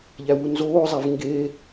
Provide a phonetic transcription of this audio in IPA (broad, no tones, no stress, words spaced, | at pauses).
ʎæwunzoːzˤæv ŋɡe